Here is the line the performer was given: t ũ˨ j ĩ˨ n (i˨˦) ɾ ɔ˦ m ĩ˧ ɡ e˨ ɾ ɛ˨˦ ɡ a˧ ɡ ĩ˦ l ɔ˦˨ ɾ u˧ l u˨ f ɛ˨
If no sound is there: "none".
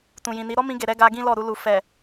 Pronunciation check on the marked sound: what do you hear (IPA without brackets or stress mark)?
i˨˦